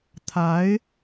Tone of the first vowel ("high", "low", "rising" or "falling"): rising